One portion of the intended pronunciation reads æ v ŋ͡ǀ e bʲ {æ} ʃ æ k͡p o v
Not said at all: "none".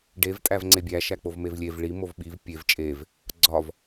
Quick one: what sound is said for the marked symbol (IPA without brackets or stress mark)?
æ